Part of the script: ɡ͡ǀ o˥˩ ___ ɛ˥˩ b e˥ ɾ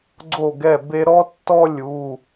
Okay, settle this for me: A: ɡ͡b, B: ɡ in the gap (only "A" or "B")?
B